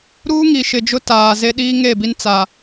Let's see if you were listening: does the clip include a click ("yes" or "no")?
no